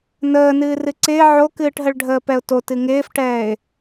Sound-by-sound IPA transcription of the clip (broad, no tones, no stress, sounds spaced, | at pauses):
n əː n ɨː r ɨ ǀ ɪː ʕ o k ɨː ʈ ɦ ə ɭ ɖʱ əː p ɛ ʊ̯ t o t ɨ ŋ ɪː f ʈ ɛː ɪ̯